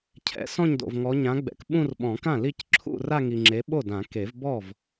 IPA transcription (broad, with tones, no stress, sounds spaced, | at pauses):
cʰ ɛ̰˨˦ s ɔ̃˥˧ ɲ d o̰˨ v ŋ ɔ˨˦ ɲ ã˨˦ ɡ͡b ɛ̰˨˩˦ k ɓ ũ˥˧ r ɓ ɔ̃˨˩˦ k ã˥˩ l i˥˧ c ǁʰ ṵ˥˧ r a˥˧ ŋ i˨ ŋ͡ǁ e˨˦ ɓ o˥˩ d ã˨˩˦ k e˨˩˦ v b ɔ˥˩ v